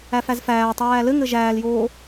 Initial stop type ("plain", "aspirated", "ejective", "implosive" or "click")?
plain